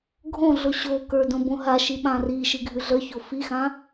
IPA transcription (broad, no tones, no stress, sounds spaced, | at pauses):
ɡʱ õ ɮ o ɕ o k ə˞ d õ b õ ɦ a ʃ i ɓ ã r i ʃ i ɡʱ ʉ ɮ ə˞ ç o f i x ã